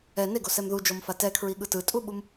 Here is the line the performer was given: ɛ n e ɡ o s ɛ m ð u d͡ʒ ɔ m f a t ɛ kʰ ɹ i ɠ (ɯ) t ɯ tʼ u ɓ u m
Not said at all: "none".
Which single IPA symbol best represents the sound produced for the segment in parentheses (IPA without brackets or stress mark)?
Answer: ɯ